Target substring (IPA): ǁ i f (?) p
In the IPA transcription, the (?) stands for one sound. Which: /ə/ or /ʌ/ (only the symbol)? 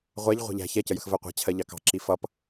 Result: ʌ